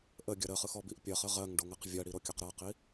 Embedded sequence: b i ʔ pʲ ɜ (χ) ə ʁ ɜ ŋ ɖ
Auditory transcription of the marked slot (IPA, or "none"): χ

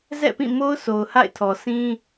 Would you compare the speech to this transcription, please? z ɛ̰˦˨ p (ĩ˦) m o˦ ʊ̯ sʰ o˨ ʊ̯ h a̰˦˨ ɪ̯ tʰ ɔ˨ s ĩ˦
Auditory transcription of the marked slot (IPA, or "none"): ĩ˦˨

